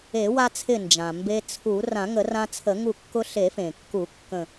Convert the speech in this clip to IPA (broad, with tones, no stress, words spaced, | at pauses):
e˨˩˦wa˧t͡sʰɪ˧˩ nd͡ʒã˩mbe˧ t͡sʰu˨˩˦ rã˨˩˦ŋə˨˩˦rã˧ t͡sʰə˨˩˦ŋu˧˩kːʊ˧ ɬe˨˩˦fẽ˩kːu˨˩˦ kːə̃˧˩